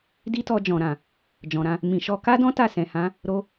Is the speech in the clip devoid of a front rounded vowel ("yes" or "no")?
yes